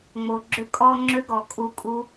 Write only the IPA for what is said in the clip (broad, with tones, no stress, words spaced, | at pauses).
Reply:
ŋ͡mo˨ɡ͡ǁʏ˧kʼɔ˧ ŋ͡ǁʏ˦ɡɔ˨kʼu˧kʼu˦